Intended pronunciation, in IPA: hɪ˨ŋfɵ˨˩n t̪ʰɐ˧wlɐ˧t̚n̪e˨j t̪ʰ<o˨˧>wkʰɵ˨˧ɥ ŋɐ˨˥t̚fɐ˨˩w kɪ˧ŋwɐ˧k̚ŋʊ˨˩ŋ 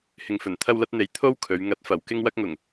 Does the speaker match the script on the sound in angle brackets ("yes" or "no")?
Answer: no